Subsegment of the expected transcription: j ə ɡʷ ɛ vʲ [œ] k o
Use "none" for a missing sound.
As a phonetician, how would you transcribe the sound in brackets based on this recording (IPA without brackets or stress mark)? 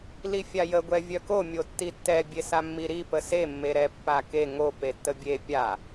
œ